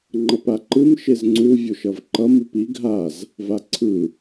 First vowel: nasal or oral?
oral